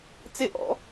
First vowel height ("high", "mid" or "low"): high